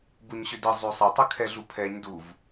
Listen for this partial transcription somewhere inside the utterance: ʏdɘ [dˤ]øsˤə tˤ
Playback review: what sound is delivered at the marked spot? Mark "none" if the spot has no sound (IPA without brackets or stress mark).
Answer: zˤ